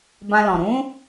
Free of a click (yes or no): yes